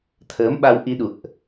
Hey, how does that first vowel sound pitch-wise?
rising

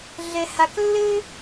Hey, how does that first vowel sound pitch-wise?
high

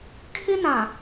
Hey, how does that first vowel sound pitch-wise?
high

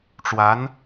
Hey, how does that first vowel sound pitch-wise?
rising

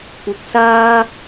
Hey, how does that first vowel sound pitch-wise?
rising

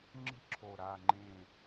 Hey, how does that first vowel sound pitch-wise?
high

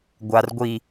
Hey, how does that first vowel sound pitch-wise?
low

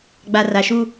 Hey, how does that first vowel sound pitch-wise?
low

